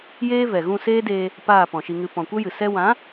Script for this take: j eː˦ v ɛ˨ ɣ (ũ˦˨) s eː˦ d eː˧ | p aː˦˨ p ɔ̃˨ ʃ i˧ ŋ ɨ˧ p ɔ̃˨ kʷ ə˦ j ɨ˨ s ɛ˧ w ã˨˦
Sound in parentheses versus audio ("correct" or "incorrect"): correct